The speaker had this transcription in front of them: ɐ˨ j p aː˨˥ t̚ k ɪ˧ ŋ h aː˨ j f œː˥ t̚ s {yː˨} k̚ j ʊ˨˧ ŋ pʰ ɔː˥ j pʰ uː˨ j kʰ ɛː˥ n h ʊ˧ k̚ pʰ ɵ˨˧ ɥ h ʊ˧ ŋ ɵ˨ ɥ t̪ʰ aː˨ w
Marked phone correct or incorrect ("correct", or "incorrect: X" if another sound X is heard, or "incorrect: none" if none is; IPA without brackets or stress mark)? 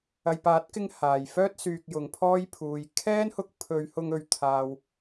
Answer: correct